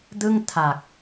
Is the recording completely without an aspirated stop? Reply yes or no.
no